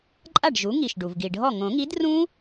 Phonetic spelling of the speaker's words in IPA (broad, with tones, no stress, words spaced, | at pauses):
ǃʼa˥˩ɖʒu˩˥ŋi˩ʃ ɖu˩vɡi˩ɖʱɔ˥˩ ŋõ˨˩˦ŋi˩˥drũ˦˥